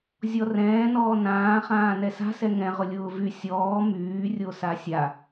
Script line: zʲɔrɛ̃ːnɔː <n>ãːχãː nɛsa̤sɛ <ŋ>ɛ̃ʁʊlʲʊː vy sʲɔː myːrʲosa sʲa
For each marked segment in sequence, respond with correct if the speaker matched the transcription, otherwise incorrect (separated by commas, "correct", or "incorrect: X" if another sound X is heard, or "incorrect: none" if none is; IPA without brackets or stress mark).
correct, correct